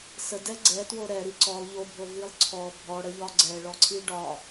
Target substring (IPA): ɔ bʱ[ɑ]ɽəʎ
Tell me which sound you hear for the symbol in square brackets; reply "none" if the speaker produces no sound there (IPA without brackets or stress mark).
ɔ